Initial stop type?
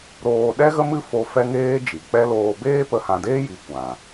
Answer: implosive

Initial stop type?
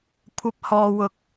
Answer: aspirated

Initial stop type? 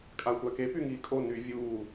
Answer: ejective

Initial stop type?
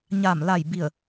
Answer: plain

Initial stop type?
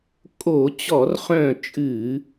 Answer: ejective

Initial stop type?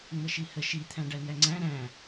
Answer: aspirated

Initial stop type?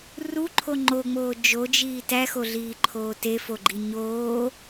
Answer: click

